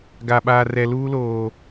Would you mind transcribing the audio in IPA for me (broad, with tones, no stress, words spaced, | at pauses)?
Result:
ɡa˨ɓaː˨ rɛ˨luː˦loː˨